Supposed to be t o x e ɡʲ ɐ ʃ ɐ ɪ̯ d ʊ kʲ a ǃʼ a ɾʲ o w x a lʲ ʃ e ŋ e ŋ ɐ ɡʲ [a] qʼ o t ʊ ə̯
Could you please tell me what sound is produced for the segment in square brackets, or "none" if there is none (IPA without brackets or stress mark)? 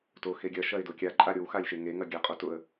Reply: a